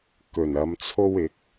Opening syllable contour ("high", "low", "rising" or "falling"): low